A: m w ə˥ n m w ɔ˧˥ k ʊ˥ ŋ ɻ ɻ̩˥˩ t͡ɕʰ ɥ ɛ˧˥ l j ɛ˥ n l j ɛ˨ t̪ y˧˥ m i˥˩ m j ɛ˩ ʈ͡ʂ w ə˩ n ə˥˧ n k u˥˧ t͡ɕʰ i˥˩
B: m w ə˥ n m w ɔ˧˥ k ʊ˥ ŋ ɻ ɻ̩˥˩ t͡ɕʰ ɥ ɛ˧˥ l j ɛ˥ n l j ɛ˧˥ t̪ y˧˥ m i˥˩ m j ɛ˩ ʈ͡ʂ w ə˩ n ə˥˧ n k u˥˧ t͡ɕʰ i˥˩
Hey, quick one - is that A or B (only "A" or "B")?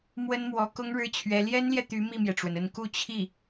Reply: A